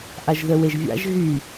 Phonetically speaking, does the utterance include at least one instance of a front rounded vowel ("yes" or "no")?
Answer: yes